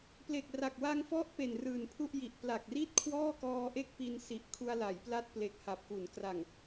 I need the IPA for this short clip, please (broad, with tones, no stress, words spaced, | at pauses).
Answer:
ple˨˩k̚ra˨˩k̚ wa˧ŋfɔ˦˥ʔ pe˨˩nrɯː˨˩npʰu˥˩ʔji˨˩ʔ pla˨˩k̚ri˥˩t̚ kʰwɔː˥˩kɔː˧ʔe˥˩k̚ pi˧nsi˨˩ʔ kʰu˧a̯la˩˦jpla˦˥t̚ ple˨˩k̚ ha˨˩p̚ ku˩˦nkra˨˩ŋ